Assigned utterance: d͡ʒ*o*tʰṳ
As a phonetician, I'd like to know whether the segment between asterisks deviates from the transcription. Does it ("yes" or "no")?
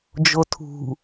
no